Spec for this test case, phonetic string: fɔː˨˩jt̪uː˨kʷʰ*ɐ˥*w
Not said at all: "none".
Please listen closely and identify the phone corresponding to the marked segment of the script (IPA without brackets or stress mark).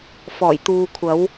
ɐ˨˧